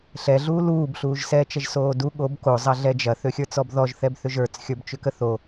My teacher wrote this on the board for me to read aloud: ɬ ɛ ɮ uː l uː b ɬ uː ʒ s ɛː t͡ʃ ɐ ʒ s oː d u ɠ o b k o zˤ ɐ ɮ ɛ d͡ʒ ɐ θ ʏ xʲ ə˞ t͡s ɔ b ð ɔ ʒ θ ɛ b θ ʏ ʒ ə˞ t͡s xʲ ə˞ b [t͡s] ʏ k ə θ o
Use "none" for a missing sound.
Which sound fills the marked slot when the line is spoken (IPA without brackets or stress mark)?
t͡ʃ